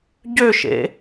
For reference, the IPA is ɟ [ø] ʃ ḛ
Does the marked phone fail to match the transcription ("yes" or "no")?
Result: no